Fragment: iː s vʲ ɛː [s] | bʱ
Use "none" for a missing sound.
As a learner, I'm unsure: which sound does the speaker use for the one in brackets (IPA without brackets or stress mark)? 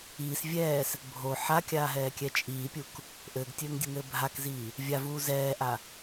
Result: s